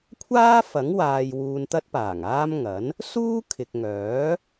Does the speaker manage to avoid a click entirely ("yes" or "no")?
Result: yes